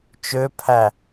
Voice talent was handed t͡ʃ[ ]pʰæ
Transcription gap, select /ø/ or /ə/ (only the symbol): ø